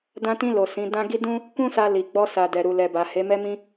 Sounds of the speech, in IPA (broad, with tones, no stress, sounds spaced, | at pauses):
d ã˧ t ĩ˧ l o˨ s ĩ˨˦ d ã˦ ɡ i˦ d ũ˦ | k ũ˦ s a˧ l i˨ ɡ͡b ɔ˧ s a˨ d ɛ˨ ɾ u˨ l ɛ˨ b a˨ h e˨˦ m ɛ˧ m ĩ˧